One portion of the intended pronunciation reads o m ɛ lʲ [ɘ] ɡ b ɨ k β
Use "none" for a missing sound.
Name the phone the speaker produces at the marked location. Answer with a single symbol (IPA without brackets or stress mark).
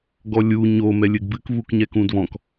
ɘ